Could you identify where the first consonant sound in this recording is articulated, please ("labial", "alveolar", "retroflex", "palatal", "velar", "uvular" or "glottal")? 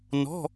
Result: alveolar